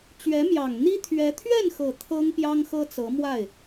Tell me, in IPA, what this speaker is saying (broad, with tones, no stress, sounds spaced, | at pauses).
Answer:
t͡ɕ ɥ ɛ˧˥ m j ɑ˨˩ ŋ n̪ i˥ t̪ʰ ɥ ɛ˧˥ t̪ʰ ɥ ɛ˥˩ n x ɤ˨˩ t̪ʰ ɤ˥ ŋ p j ɑ˥ ŋ x ɤ˥ t͡s ɤ˧˥ m w a˥˩ ɪ̯